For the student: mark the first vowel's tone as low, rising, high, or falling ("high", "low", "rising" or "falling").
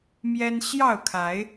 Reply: high